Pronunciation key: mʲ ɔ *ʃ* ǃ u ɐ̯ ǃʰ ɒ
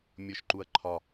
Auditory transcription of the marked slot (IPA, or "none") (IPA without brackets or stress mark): ʃ